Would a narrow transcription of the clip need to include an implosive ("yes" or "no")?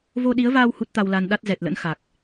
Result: yes